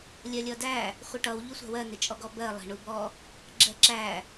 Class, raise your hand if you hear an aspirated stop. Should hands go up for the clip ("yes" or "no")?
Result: no